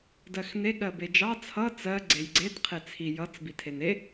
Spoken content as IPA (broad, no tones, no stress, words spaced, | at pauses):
dɜxne ɠɜbed͡ʒɑ t͡sʰʌ t͡sɜ ɡ͡ǀejɡ͡ǀet qʰet͡sʰi jʌt͡s bitʰene